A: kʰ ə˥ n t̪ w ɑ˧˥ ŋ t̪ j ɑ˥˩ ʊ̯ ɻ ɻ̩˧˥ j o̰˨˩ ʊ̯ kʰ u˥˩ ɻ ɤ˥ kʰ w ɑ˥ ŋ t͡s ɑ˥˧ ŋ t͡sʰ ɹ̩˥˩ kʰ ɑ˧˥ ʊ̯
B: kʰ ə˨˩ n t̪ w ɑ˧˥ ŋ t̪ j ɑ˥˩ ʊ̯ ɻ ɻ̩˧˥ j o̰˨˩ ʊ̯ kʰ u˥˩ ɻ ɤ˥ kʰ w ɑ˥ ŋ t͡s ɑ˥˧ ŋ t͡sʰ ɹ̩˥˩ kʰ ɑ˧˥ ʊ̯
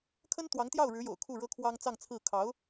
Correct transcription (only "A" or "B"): A